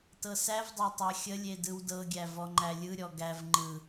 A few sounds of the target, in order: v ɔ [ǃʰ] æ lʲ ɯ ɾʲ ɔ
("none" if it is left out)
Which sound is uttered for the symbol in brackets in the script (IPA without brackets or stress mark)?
ŋ͡ǃ